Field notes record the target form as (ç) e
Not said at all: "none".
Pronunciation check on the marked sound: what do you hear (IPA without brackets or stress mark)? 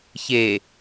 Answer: ç